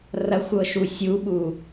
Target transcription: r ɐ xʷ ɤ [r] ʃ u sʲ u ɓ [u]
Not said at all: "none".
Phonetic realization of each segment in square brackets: none, u

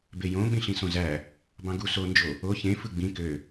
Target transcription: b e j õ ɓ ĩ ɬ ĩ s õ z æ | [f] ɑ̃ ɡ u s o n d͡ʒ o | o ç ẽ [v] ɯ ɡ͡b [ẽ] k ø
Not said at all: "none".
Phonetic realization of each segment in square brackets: b, f, ĩ

